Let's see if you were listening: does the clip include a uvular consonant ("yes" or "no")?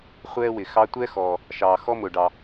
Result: yes